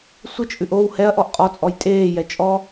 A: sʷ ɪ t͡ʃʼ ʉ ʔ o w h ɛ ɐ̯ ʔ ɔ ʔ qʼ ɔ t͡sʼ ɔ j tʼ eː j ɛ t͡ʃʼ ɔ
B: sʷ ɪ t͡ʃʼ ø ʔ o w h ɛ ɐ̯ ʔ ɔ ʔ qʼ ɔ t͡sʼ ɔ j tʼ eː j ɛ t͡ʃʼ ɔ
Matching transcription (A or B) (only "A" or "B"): A